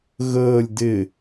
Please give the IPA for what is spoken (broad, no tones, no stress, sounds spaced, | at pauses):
ɣ əː lʲ d ɪ